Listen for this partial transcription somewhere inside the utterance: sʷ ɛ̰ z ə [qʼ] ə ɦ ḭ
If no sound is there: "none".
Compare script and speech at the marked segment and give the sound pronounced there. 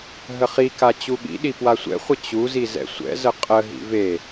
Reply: qʼ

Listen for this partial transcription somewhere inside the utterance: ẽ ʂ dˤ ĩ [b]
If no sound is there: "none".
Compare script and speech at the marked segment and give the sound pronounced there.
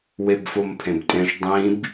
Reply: b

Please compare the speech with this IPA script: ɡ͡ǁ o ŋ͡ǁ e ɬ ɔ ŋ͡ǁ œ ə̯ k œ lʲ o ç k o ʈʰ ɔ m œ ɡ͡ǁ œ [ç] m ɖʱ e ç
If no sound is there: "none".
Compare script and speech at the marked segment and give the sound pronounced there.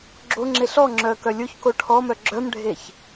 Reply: none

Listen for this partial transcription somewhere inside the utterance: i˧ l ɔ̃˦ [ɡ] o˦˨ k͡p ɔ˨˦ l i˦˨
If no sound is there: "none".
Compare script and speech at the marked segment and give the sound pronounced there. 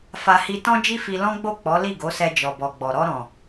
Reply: ɡ͡b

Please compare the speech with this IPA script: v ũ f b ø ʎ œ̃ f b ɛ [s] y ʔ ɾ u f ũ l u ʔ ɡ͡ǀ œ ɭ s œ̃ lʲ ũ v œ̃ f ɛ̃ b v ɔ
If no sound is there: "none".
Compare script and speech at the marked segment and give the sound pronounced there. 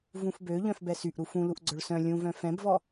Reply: s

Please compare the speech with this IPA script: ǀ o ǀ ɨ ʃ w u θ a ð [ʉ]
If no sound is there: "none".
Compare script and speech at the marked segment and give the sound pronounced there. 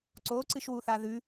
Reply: ʉ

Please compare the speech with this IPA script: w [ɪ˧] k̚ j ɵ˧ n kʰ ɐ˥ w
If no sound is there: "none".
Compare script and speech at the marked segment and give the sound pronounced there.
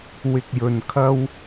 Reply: ɪ˧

